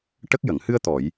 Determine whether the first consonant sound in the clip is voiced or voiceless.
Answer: voiceless